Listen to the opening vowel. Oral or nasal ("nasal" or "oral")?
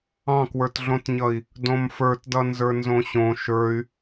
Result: nasal